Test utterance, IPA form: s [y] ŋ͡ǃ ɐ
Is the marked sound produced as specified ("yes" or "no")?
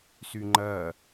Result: yes